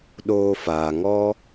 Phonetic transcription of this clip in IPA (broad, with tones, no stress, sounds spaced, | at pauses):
ɗ oː˧ f aː˨ ŋ ɔ˦